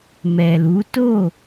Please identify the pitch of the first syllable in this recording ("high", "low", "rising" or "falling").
low